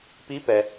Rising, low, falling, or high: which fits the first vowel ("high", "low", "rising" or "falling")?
rising